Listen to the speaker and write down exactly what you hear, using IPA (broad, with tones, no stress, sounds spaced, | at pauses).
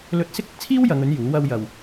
l ɵ˧ t̚ s ɪ˥ k̚ ɪ˥ k̚ t͡sʰ iː˥ w j ɐ˨˧ ŋ ɵ˨˥ n j uː˨˥ w ɐ˧ w j ɐ˨ w